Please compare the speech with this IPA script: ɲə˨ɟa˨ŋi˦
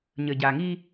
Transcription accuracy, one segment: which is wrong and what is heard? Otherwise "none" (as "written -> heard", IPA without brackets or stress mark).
none